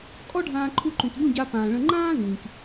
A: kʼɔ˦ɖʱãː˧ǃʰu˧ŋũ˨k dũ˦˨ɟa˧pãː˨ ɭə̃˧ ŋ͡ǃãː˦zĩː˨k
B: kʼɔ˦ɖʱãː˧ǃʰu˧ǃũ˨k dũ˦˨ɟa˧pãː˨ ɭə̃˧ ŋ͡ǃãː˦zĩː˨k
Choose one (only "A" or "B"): B